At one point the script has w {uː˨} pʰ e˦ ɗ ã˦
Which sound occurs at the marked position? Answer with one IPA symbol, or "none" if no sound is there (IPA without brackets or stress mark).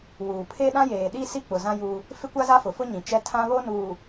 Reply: uː˨